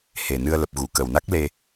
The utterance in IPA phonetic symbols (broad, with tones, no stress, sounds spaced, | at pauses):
h e˨˩ n ɨ˧ ə̯ l ə˨˩ p̚ ɣ u˧˩ k ə˨˩ w n a˦˥ k̚ l e˧